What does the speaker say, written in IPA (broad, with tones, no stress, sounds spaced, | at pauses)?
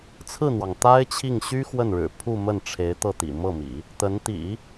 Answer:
t͡sʰ ɹ̩˥˩ n̪ w ɑ˩ ŋ t̪ a˥ ɪ̯ t͡ɕʰ i˥˩ ŋ ɕ y˥ x w ə˥˩ n ɻ ɻ̩˨˩ pʰ u˥˧ m ə˥˩ n ʈ͡ʂʰ e˧˥ ɪ̯ t̪ ɤ˥˩ t̪ ḭ˨˩ m ɤ˥˩ m ḭ˨˩˦ | t̪ ə˧˥ n t̪ ḭ˨˩˦